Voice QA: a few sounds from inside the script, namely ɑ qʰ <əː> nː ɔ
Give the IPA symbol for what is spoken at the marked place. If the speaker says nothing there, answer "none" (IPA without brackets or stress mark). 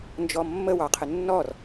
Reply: ə